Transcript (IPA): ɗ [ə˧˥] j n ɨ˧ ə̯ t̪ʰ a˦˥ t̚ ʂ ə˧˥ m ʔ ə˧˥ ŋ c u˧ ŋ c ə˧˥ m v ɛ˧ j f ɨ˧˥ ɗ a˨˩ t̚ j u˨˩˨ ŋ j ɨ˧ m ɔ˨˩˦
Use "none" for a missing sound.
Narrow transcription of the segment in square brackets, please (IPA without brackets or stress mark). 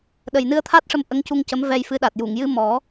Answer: ə˨˩